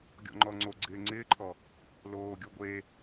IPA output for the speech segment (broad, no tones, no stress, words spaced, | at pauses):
ɡʲɔ̰ŋ͡ǃɔŋ͡ǀoɡ͡ǀɪː ŋ͡ǀɪːǃʰɔ | loːɡʲo ɡʷe